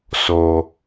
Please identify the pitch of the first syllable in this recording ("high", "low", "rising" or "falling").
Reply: low